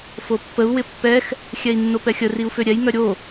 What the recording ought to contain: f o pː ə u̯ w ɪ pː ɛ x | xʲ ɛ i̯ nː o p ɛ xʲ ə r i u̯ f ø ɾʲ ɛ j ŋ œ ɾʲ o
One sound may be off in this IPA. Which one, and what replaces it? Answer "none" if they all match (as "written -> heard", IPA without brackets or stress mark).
none